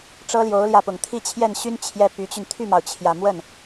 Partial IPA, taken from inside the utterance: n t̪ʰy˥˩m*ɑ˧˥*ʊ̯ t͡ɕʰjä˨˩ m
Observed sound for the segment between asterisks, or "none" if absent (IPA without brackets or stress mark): ɑ˩